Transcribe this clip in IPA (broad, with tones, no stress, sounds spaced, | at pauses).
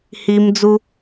h i˧ m d͡z u˧